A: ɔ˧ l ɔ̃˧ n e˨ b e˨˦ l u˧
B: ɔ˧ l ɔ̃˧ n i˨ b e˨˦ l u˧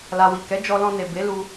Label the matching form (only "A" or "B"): A